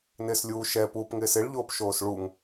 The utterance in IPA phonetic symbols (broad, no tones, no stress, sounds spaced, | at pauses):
n ɪː s lʲ uː ʃ ɛ p uː p ŋ ɪː s ɪ ɭ ʎ oː p ʃ oː s ɭ u ŋ